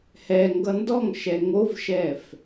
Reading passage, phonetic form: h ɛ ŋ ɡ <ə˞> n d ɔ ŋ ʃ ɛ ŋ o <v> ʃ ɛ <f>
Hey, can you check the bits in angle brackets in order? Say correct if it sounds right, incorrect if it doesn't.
incorrect, correct, correct

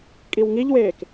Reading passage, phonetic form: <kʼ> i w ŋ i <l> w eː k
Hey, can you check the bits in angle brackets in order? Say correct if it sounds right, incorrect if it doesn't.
correct, incorrect

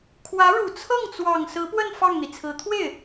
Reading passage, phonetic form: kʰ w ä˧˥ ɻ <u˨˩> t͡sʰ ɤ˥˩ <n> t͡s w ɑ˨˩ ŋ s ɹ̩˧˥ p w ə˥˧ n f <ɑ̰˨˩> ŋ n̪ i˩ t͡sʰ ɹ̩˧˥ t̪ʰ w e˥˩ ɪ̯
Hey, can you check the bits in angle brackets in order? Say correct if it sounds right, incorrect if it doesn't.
correct, incorrect, incorrect

